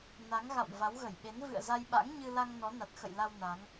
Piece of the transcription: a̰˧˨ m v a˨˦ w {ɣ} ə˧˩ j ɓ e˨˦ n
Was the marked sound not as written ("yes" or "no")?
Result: no